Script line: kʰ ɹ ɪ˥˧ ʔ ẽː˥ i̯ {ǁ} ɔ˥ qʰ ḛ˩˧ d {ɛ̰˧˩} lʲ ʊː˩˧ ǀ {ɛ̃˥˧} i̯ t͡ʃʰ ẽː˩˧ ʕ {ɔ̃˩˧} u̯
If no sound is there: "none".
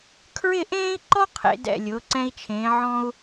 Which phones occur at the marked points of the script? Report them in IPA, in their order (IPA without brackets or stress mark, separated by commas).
ǃ, ɛ̰˧˩, ɛ̃˧, ɔ̃˧